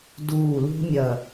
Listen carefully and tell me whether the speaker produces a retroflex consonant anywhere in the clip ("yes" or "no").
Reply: no